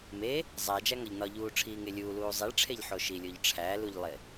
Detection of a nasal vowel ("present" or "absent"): absent